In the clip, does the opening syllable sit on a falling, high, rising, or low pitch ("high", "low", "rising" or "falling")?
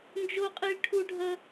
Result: high